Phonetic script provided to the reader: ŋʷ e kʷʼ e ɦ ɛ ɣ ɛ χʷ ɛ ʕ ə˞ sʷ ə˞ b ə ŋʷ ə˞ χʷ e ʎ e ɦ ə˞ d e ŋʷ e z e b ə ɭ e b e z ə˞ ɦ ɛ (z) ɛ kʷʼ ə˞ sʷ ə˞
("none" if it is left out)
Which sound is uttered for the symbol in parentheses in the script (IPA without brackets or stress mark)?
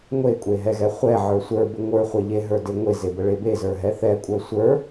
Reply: θ